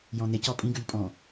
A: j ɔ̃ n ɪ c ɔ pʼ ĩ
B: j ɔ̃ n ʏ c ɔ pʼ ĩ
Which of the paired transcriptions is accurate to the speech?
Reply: A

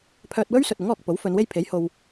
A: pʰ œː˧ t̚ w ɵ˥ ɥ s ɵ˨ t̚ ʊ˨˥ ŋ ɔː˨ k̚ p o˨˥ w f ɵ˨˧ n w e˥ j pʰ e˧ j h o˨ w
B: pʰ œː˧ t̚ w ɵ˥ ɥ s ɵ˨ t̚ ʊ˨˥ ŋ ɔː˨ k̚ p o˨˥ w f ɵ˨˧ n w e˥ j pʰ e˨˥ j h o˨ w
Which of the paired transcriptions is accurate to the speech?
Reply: B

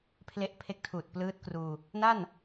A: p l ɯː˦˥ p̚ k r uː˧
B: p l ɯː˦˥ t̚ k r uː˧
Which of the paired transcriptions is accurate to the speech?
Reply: B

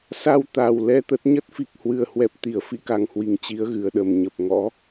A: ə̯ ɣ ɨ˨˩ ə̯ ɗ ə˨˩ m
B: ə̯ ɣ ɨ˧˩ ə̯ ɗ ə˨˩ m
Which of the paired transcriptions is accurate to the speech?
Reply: B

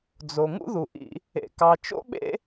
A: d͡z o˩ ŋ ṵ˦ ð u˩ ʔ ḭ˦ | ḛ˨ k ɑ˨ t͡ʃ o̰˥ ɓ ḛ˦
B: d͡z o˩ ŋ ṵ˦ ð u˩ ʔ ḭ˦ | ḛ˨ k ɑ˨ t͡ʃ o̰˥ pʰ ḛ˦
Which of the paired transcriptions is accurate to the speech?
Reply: A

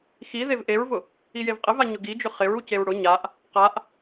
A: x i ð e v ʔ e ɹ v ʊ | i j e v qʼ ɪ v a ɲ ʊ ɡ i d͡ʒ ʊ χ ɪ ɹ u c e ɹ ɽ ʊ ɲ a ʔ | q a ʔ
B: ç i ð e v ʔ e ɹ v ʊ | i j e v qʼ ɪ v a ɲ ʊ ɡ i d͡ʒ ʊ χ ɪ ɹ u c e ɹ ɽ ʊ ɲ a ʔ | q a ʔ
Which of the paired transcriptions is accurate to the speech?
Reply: A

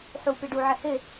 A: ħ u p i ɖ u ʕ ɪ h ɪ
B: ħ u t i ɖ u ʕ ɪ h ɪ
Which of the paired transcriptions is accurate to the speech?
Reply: A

